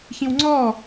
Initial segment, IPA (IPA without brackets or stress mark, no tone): ç